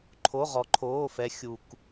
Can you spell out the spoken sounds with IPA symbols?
ǃʰ o˧˥˧ ʁ ɔ˧˥ ǃʰ oː˧˥˧ f ɛ˧˥ xʲ u˧ k

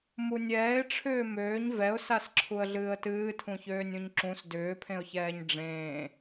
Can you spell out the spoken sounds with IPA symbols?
m u nʲ ɛː ɪ̯ ʈ͡ʂʰ ʏː m øː ɲ v ɛ ʊ̯ s a s ǁʰ u ə̯ ɮ ɨː ə̯ t ɨː tʰ ũ ç øː nʲ ũ ɲ ǁ ũ s d ʏː pʰ ẽ ʊ̯ ç ɛː ɲ ɖ͡ʐ ẽː

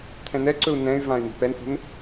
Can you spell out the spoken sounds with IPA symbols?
t̪ʰ ɛ̃ n ɛ ǀ ɵ u̯ n ɛ̃ y̯ v ã y̯ n i̤ p ɛ n θ ə̤ n

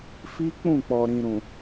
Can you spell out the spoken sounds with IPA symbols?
f i˦ k͡p ũ˦˨ k͡p ɔ˨ ɾ ĩ˨ ɾ ũ˨

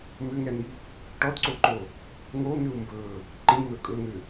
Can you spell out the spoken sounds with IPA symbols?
m ʏ ŋ ɛ n̪ i | ʈ ɔ d ǀ o ǃ o | ŋ o n̪ ʏ u̯ m b ɵ | ǃ ĩ n̪ ɵ kʼ ɵ ŋ ʏ

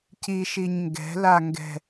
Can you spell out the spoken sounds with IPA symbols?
c i ʃ i ɲ ŋ ɡ ɛ̤ l a ŋ ɡ ɛ̤

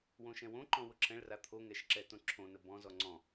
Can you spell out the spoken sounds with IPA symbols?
w õ ʃ ɛ̃ w õ ǃ ɔ̃ w ʊ ǁʰ ɛ̃ ɭ r a t̪ʰ o ŋ ɛ ʃ ǁ ɛ t õ ǁʰ õ n ə b ɔ̃ z ɔ ŋ͡ǀ ɔ̃

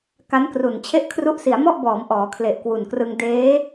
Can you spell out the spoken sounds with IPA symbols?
k a˦˥ n k r u˨˩ n t͡ɕʰ e˥˩ ʔ kʰ r u˥˩ ʔ s i˩˦ a̯ m ɔ˥˩ ʔ b ɔː˩˦ m ʔ ɔː˩˦ kʰ l e˨˩ ʔ k w u˨˩ n k r ɯ˧ ŋ d eː˦˥

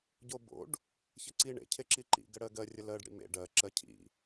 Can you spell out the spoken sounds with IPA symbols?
ɟ o b o̰ ɖ | ç ə ǀ i ɳ ḛ cʰ e ǁ i ǃ ḭ ɡ ə ɽ ɜ ɡ ɜ rʲ ə l ɜ ɖ ɽ ḭ m ḛ ɖ ɜ ǁ ɜ cʰ ḭ

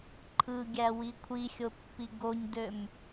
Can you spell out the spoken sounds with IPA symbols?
ǃʰ ɯ ɡʲ æ w i kʷʰ i xʲ o pː i ɡ o ɲ d ø m

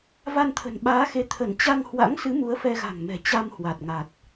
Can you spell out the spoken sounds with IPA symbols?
v a˧ n t̪ʰ ə̤˨˩ n ɓ aː˨˦ x e˨˦ t̪ʰ ə˧˩ n t͡ɕ a˧ ŋ h w a̰˧˥ ŋ s ɨ˨˦ m u˨˦ ə̯ f ɛ˧ ɣ a̤˨˩ ŋ m ɛ̤˨˩ t͡ɕ a˧ m h w a˨˩ t̚ ŋ a˨˩ t̚

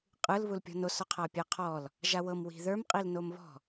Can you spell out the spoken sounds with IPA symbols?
qʼ ɯ l β u l pʲ ɔ̤ n o s ɔ qʰ a pʲ a qʰ ɔ l | ʒ a w ɤ m w i̤ ð ə˞ m qʼ i l n o m β ɔ̤

